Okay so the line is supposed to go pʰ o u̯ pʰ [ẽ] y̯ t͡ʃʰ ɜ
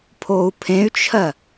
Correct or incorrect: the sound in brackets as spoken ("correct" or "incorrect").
correct